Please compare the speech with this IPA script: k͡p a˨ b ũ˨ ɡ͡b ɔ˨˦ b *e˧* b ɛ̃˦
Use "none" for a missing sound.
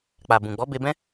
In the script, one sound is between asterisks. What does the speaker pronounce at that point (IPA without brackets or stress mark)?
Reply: e˧